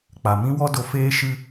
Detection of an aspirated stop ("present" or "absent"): absent